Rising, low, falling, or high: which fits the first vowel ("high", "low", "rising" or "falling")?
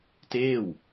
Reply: falling